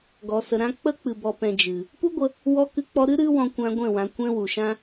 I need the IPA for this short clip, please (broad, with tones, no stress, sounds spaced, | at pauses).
ɡ ɔ˨ s ə˨ ɾ ã˦ k͡p ə˦ k͡p ɨ˨ b ɔ˨ p ɛ̃˨ d͡ʒ ɨ˨ | p u˦ ɡʷ ə˧ | w ɔ˧ k ɨ˧ k͡p ɔ˧ ɾ ɨ˦ ɾ ɨ˦ w ɔ̃˧ kʷ ã˧ ɡʷ ɛ̃˦˨ w ã˨ kʷ ɛ̃˦ w u˨ ʃ ã˦